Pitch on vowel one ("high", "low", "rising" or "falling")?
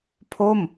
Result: falling